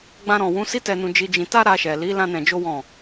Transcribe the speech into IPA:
ɡ͡bã˧ɾɔ̃˨wũ˨˦ si˦tɛ˧nũ˧ d͡ʒi˧d͡ʒĩ˧ ta˦ɾa˧ʃɛ˨li˨˦ lã˦nɛ̃˧d͡ʒo˦wɔ̃˦˨

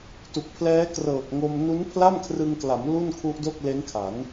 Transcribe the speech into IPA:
tu˨˩k̚pʰlɛː˦˥ krɤː˨˩k̚ŋo˧m nu˦˥npʰla˥˩mkʰrɯ˧ŋkla˩˦m lu˥˩nkʰu˦˥ʔdo˥˩k̚ le˦˥nkʰa˩˦n

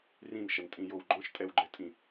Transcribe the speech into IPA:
rĩnʃɐntʼĩjow ɡ͡ǃɔ̃ʃtʼɛwɡ͡ǃɛtʼĩ

